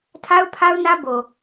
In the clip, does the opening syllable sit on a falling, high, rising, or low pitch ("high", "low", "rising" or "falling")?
high